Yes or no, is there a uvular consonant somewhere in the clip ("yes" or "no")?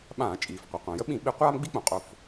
yes